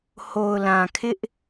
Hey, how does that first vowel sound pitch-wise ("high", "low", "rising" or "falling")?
low